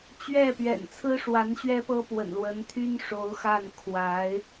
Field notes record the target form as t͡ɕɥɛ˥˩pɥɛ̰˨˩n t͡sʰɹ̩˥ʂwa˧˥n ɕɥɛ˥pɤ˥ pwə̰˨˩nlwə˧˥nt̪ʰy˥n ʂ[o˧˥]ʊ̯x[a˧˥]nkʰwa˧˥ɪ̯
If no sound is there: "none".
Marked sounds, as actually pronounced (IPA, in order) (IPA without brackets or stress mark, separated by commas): o˧˥, a˥˩